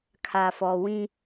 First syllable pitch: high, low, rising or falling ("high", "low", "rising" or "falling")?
low